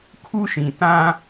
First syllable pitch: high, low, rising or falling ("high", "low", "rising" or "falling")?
high